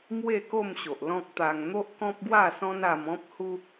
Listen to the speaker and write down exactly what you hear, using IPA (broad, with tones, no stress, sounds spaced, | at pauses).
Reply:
m w e˥˧ k o˥˧ m ɕ o˨ ʔ l ɔ̃˦ k̚ t̪ a˧ ŋ n̪ o˦ ʔ k ɔ̃˦ p̚ ɡ w a˥˧ s ɔ̃˦ n a˧ m ɔ̃˦ p̚ h u˦